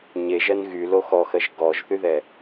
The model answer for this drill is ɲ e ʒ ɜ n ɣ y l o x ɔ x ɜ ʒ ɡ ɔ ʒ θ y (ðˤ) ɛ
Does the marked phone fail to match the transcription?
yes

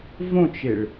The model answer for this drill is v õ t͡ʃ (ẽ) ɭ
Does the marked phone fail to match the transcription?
yes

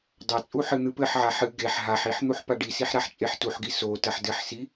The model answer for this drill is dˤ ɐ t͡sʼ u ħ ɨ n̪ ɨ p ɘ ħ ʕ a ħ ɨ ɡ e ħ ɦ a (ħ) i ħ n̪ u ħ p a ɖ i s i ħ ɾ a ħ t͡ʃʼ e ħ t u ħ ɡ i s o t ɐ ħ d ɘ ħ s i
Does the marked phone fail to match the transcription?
no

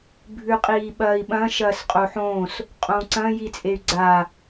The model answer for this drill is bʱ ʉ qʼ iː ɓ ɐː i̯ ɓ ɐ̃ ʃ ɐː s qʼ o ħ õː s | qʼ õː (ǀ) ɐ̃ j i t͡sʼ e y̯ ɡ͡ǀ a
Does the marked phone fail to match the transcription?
no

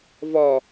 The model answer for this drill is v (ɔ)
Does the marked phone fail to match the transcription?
no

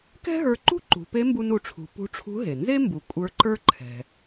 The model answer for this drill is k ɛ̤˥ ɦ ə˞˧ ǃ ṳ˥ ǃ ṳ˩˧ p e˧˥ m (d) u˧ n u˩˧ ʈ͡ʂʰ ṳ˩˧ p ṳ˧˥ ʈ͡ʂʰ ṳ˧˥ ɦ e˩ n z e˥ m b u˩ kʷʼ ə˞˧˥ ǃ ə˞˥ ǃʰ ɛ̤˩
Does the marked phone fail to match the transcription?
yes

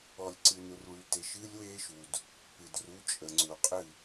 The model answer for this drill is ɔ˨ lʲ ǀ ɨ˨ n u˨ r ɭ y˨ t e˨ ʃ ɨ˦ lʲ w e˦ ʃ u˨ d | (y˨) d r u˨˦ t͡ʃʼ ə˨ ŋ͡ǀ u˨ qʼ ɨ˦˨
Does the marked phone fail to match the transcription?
yes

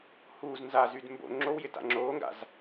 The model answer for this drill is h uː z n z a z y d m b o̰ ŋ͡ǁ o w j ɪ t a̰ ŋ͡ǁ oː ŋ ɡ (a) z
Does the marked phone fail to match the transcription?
yes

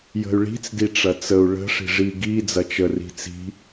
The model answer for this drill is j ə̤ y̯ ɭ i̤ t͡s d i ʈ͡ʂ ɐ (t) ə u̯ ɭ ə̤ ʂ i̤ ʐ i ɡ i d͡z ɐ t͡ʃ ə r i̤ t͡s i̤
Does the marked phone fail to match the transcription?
yes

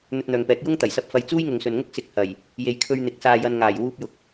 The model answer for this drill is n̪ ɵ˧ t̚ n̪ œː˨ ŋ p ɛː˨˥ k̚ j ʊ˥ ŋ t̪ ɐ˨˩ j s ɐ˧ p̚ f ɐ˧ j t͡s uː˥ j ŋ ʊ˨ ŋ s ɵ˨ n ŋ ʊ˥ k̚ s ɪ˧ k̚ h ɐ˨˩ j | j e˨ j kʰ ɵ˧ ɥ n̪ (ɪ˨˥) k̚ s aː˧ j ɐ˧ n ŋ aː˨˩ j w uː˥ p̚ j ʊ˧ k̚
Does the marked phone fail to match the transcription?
no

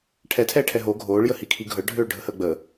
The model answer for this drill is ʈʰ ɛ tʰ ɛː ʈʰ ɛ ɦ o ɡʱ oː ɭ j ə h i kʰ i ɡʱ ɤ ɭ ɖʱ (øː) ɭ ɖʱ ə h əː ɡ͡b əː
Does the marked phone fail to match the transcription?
no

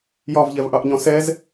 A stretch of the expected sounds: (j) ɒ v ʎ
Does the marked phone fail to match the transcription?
no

